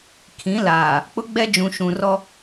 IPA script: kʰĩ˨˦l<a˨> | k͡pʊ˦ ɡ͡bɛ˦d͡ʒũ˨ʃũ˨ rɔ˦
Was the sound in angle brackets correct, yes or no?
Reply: no